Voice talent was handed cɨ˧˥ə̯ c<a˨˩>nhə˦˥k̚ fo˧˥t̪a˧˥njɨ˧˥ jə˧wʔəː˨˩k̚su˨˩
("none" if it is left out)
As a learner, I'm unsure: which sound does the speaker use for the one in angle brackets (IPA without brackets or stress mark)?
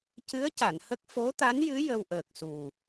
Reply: a˨˩˨